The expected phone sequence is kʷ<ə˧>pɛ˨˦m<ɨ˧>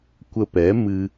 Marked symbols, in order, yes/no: yes, yes

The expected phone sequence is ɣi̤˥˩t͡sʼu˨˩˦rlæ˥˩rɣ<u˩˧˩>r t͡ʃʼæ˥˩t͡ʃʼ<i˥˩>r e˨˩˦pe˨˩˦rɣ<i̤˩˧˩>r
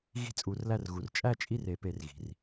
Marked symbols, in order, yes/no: yes, yes, yes

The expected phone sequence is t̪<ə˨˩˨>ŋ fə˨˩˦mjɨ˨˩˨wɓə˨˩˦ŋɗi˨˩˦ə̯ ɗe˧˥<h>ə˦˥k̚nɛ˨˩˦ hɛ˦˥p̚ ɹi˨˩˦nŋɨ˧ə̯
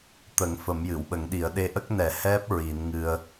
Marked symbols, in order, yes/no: no, no

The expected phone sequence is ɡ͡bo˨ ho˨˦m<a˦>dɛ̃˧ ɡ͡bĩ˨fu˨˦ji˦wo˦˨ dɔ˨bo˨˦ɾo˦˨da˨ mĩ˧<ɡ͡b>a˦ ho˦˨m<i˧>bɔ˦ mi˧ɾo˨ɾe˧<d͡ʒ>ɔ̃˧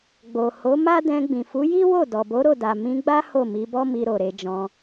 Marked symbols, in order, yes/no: yes, yes, no, yes

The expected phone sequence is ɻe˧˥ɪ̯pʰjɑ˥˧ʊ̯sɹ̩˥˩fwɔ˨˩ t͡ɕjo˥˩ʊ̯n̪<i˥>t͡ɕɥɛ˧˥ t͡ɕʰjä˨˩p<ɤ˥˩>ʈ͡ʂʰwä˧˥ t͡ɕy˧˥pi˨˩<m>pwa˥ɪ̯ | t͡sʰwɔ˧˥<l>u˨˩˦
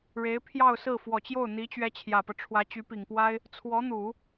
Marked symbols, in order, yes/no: no, no, no, no

